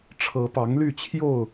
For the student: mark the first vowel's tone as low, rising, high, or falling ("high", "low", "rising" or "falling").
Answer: rising